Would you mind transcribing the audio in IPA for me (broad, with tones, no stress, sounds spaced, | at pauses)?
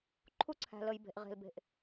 ǃʰ u˦ ǀʰ æ̤˨ l ə˨ j b e̤˨ ʔ ʁ e̤˨ l b e̤˨ ʔ